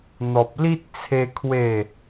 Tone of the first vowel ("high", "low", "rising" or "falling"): low